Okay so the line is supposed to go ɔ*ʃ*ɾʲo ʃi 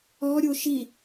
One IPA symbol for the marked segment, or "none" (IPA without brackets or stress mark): none